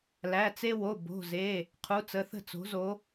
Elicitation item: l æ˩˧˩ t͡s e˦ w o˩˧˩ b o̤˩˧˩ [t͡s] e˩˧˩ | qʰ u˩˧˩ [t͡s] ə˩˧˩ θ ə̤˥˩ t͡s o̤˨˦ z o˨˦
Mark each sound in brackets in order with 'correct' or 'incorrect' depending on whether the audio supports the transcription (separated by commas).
incorrect, correct